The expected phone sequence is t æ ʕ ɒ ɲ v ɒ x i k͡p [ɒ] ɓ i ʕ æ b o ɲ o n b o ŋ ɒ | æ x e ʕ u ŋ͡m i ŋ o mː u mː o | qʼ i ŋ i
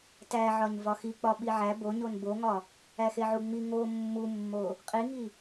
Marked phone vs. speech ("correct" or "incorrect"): correct